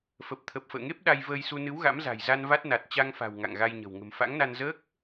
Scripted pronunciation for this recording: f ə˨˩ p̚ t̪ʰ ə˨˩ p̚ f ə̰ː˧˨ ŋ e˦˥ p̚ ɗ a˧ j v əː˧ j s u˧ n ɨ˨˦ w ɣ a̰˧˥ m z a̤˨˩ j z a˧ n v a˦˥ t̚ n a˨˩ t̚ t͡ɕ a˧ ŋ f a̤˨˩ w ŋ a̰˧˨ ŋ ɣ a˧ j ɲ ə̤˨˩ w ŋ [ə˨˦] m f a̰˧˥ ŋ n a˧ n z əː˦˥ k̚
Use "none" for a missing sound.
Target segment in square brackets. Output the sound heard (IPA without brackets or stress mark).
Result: ə̤˨˩